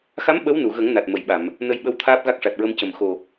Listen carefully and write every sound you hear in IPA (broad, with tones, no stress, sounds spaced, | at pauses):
x a˧˥ m ɓ ə˧˥ w n u˨˩˨ ɣ ə˨˩˦ ŋ n a˨˩ t̚ m ə˨˩˨ j ɓ a˨˩˨ m | n ə˧ j ɓ ə˧˥ w t̪ʰ aː˦˥ p̚ ɣ a˦˥ k̚ ʂ a˨˩ t̚ ɹ ə˧ m c ə˨˩ m x o˨˩